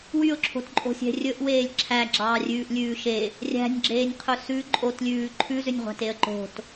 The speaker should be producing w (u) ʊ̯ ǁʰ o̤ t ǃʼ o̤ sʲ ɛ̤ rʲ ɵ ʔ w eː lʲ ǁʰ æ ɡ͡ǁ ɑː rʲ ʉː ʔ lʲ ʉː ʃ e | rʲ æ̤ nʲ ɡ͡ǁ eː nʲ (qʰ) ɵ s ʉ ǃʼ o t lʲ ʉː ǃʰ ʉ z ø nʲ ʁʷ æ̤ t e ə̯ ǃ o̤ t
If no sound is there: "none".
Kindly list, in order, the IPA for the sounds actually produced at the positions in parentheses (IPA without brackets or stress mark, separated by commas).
y, qʰ